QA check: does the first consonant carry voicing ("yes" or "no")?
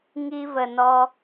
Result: yes